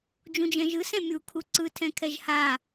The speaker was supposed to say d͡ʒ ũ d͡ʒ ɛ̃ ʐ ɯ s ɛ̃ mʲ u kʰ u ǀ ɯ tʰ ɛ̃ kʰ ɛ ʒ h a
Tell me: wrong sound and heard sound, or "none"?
ʐ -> ʒ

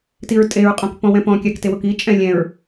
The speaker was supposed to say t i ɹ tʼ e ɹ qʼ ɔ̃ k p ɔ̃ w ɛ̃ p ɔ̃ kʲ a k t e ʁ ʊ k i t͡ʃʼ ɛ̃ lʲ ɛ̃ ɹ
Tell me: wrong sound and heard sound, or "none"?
ʁ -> w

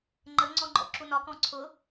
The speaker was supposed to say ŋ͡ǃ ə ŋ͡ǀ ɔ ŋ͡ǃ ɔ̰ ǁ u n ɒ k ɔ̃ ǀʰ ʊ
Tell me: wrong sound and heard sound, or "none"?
none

